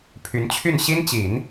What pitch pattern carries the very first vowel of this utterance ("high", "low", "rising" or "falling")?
rising